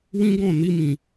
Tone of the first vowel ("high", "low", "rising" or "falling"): high